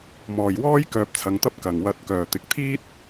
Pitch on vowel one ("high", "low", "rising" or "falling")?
low